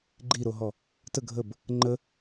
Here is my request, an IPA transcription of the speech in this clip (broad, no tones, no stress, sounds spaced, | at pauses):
ɡ͡ǃ i ɾ o ɦ ɔ | t ə ɡʱ ə b | ŋ͡ǃ ə